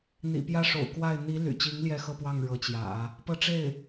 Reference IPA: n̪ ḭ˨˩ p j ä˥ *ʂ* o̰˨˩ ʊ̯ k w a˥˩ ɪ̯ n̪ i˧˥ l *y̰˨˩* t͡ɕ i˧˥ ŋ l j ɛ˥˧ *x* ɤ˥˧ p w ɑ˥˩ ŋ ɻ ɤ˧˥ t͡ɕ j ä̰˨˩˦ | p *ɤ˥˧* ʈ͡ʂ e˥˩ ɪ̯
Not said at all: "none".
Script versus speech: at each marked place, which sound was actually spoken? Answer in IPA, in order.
ʂ, y̰˨˩, x, ɤ˥˧

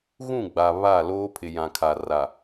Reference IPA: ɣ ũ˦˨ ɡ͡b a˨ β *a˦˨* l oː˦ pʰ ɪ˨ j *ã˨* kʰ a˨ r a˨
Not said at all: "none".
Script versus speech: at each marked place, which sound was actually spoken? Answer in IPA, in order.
a˦˨, ã˨

